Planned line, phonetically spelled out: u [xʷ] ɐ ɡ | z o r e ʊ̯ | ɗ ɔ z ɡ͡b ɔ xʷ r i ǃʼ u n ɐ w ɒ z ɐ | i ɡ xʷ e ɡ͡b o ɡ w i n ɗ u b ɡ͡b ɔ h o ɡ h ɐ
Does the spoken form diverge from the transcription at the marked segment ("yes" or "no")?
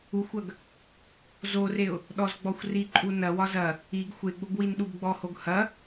no